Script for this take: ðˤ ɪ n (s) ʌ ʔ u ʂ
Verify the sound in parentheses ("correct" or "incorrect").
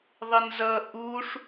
incorrect